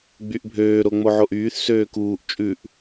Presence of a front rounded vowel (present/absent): present